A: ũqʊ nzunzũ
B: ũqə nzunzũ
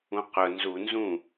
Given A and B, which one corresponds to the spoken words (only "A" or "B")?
A